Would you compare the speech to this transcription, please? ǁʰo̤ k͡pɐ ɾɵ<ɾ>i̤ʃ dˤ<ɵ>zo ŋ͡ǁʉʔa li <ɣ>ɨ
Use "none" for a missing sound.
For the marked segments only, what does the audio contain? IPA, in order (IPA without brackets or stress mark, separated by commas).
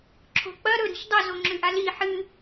ɾ, ɵ, ħ